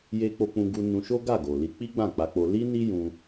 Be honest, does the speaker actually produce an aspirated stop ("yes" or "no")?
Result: no